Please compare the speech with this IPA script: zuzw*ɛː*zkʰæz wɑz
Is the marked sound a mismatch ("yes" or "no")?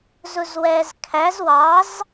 no